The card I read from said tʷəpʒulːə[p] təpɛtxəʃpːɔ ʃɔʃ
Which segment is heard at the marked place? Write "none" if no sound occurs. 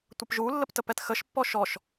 p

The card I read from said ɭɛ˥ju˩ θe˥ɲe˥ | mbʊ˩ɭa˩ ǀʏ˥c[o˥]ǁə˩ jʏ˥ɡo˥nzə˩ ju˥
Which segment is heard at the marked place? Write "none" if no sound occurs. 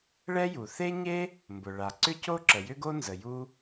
o˥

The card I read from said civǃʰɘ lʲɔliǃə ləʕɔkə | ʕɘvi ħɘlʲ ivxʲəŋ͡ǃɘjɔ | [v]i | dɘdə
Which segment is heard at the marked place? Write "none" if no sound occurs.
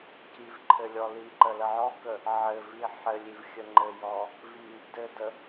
v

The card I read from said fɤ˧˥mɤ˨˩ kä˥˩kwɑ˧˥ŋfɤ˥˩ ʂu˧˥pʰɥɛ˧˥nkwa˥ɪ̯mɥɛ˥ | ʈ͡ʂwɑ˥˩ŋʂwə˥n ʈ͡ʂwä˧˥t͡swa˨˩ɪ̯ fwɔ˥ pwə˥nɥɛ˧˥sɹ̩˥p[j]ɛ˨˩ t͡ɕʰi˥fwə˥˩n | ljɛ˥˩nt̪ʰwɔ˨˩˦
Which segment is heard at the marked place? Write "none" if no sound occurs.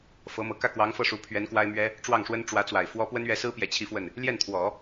j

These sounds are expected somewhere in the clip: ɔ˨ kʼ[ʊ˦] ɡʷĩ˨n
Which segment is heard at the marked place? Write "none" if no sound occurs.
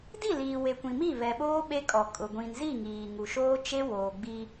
ʊ˨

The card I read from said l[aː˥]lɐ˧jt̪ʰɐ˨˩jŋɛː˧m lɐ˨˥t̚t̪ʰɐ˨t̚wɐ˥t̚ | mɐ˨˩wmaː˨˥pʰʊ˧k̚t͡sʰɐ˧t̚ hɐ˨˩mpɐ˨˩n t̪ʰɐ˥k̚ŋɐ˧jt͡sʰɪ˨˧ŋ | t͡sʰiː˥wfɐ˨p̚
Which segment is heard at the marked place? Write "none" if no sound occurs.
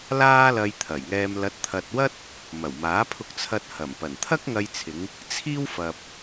aː˥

